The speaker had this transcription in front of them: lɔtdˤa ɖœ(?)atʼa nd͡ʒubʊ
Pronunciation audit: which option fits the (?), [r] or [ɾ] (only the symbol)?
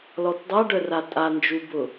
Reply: r